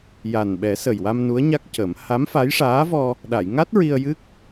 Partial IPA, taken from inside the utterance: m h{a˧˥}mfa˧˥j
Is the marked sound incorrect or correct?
correct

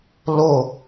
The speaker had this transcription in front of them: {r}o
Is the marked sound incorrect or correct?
incorrect: l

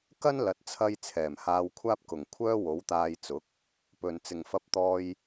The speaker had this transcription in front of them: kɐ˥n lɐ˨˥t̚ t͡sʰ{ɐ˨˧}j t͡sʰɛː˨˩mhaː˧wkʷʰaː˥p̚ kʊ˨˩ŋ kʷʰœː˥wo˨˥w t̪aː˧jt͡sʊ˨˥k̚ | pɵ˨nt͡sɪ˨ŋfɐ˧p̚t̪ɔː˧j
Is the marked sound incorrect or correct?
incorrect: ɐ˧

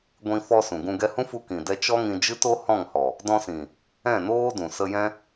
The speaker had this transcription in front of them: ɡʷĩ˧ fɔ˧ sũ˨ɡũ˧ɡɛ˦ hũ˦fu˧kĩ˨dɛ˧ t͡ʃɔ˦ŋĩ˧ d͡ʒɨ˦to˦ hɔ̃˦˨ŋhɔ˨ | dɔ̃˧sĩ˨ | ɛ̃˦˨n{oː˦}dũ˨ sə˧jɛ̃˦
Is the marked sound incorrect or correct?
correct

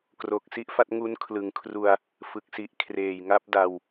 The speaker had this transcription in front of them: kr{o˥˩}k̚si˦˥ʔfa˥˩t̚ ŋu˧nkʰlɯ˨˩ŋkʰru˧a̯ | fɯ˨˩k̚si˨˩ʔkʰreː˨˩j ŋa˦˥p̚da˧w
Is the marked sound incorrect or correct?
incorrect: o˨˩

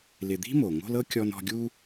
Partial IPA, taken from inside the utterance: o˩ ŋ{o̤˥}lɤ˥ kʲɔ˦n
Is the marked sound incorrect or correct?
incorrect: o̤˦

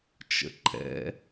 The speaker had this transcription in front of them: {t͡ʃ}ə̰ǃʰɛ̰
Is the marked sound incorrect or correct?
correct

